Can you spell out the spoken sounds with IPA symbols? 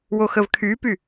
w o x ə v kʰ y p y

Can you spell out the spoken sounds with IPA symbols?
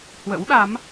h w ə̰˧˥ w ɗ a˨˦ m

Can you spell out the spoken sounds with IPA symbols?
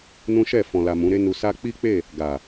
n ũ˦ ʃ ɛ˦˨ f ɔ̃˨ l a˨ m ũ˨˦ ɾ e˦ n u˧ s a˦ k͡p i˦ k͡p e˦˨ | ɡ a˨

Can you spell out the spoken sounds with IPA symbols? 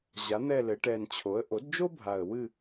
ʑ a˩˥ n̪ ɛ˦˨ l ɘ˩˧ ʈ ɛ˨˩ n t͡ɕʰ o˩˥ ə̯ ʔ o˩˥ d d͡ʒ o˥ bʱ a˨˩ ə̯ w ɨ˦˨

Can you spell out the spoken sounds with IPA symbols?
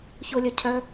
ç ʊ lʲ œ cʰ œ

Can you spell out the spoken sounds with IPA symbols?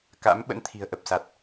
k a̰˧˥ m ɓ ə̰˧˥ n t̪ʰ i̤˨˩ ə̯ ʔ ə˨˩ p̚ s a˨˩ t̚

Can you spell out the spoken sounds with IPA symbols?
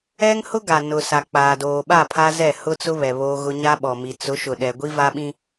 ɛ˦ ŋ h ʊ˦ ɡ a˨ n ʊ˨ s a˨ k͡p aː˨ d oː˨ ɓ a˦˨ pʰ a˦ z ɛ˦˨ h ʊ˦ t͡s ʊ˦ β ɛ˨ β oː˦ ɣ ʊ˦ ɲ a˦ ɓ ɔ˨ m i˨ t͡s ʊ˨˦ ʃ ʊ˨ ɗ ɛ˦ ɡʷ i˦ v a˦ ɓ ĩ˦

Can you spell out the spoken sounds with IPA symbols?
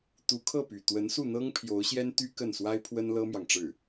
t̪ u˧˥ kʰ ɤ˥˩ p y˨˩ t̪ w ə˧˥ n s u˥˩ n̪ ɤ˥ ŋ pʰ j o˧˥ ʊ̯ ɕ j ɛ˥ n t̪ y˥ k ə˥˩ n s w a˥ ɪ̯ pʰ w ə˥ n l ɤ˥ m j ɑ˨ ŋ ʈ͡ʂ ɻ̩˥˩

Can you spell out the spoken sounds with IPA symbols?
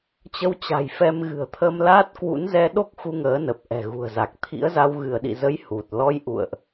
t͡ɕ ə˧ w t͡ɕ a̤˨˩ j f ɛ˧ m ɣ ɨ̤˨˩ ə̯ t̪ʰ ə˧ m l aː˦˥ t̚ k w ṵ˧˥ n z ɛ˧ ɗ o˦˥ k̚ x u˧ ŋ əː˨˦ n ə˨˩ p̚ ʔ ɛ̤˨˩ ɣ ṳ˨˩ ə̯ z a˨˩ k̚ t̪ʰ ḭ˧˥ ə̯ z a˧ w ɣ ɨ˧˩ ə̯ ɗ ḭ˧˨ z ə˨˦ j h u˨˩ t̚ l ɔ˧ j ʔ ṵ˧˨ ə̯ ʔ

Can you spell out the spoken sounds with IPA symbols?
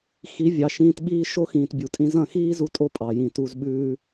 x i˨˦ vʲ ɑ˨ ʃ ĩː˧ t ɓ iː˦ ʃ o˦ x ĩː˨ t bʲ u˨ tʼ ĩ˧ z ɐ̃˦˨ x iː˦ z u˧ tʼ o˧ pʼ ɑ˨ j ĩ˨ t u˧ z ɓ ʉː˦

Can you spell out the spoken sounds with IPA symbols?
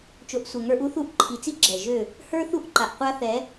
t͡ʃ o˨ ʔ sʷ ɛ˨ ŋ ə˞˧ ʔ u˦ θ u˦˨ ʔ ǃʰ i˨ t͡s i˦ ɡ͡ǁ ɛ˨ ʒ ø˦˨ | h ə˞˦ θ u˦˨ ʔ ǃ a˨ ʔ qʷ a˦ θ ɛ˨˦

